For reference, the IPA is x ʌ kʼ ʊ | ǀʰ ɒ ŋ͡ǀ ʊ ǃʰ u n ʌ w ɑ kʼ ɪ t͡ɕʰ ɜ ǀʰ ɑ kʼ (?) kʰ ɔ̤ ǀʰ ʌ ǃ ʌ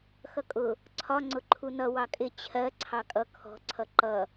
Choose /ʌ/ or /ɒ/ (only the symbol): ʌ